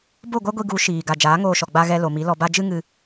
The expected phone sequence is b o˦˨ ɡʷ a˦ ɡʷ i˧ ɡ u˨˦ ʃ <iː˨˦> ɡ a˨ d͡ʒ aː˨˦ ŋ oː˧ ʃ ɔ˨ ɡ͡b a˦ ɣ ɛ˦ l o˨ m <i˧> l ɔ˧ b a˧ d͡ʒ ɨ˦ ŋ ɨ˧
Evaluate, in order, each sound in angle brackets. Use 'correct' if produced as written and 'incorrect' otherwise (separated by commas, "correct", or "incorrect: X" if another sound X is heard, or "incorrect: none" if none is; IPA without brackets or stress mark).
incorrect: iː˨, incorrect: i˨˦